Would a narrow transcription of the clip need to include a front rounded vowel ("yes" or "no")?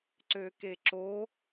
yes